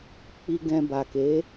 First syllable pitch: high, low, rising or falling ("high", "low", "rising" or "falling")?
low